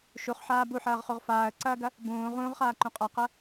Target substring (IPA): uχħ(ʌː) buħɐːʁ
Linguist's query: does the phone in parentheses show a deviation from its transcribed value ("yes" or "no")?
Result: yes